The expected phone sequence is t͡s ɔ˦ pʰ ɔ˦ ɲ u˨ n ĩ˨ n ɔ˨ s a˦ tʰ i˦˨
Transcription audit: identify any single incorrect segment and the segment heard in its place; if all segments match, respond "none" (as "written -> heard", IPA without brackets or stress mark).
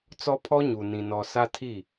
none